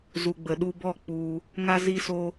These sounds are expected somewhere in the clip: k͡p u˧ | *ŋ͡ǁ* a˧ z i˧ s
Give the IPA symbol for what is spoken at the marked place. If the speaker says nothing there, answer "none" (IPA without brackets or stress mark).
ŋ